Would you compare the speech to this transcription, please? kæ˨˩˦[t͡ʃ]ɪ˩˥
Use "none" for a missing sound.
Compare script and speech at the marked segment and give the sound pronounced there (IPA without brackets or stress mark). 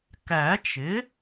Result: t͡ʃ